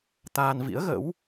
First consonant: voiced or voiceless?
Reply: voiceless